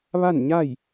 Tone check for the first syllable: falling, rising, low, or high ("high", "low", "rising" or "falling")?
falling